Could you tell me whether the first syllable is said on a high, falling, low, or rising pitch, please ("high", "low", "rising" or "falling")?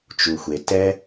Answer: low